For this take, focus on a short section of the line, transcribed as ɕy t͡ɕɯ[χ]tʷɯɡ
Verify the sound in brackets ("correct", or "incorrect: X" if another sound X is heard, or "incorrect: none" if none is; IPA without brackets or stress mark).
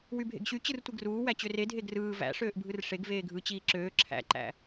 incorrect: r